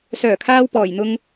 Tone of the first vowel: low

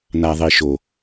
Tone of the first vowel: low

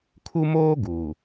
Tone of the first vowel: high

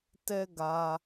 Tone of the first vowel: high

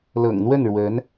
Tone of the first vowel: low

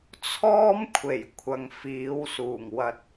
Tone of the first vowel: high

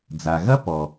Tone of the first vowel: low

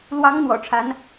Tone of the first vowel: rising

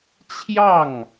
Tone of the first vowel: falling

